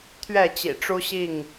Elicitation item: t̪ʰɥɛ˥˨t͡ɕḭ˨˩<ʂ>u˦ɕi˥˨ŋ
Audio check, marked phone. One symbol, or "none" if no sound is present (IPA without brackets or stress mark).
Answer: ʈ͡ʂ